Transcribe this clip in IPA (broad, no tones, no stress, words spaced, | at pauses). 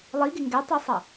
lˠiɡɪ ŋɡɛtˤisˤʌ